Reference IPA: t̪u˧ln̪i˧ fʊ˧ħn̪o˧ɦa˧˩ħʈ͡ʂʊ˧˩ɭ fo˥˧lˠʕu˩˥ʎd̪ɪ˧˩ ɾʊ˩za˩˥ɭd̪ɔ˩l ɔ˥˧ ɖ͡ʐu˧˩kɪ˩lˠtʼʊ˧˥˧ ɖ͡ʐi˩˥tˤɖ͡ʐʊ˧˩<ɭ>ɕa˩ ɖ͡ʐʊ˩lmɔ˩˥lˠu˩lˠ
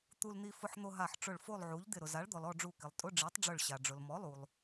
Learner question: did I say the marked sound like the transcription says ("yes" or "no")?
yes